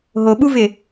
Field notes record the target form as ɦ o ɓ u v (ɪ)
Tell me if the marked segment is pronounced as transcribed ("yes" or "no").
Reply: yes